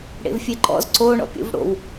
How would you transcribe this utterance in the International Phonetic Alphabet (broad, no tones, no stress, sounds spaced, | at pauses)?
ɽ ḛ v fʲ e ǃ ɔ̰ z ǀ o ɳ ɔ̰ pʲ ṵ v ɽ o̰ w